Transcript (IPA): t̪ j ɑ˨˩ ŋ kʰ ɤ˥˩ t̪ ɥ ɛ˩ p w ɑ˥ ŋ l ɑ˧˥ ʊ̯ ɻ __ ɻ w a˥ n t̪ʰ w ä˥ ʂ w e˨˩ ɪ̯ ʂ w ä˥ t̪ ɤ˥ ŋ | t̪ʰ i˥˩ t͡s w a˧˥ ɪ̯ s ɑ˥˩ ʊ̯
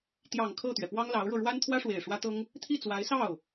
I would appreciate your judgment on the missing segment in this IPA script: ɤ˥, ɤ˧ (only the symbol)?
ɤ˧